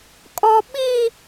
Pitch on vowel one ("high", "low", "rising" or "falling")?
high